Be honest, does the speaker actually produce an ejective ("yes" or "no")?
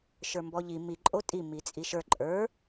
yes